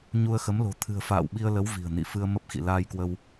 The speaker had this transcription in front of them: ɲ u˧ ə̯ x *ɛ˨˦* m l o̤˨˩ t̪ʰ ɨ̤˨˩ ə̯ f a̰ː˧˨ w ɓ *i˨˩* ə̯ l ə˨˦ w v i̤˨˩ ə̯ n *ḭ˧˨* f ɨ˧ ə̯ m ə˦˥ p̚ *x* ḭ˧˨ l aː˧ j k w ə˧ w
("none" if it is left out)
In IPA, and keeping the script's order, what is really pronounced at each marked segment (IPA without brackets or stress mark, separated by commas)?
ə˨˦, i˧, ḭ˧˨, x